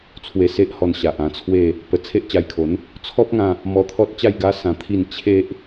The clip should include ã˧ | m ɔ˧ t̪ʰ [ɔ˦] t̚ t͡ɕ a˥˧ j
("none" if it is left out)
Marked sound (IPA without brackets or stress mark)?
ɔ˦